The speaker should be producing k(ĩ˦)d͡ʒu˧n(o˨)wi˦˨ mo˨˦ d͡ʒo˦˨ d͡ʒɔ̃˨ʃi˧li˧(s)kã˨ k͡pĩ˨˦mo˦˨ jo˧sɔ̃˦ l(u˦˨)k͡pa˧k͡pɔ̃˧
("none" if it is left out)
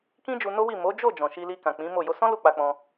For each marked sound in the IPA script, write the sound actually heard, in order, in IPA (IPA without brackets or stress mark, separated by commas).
ĩ˦, o˦, none, u˦˨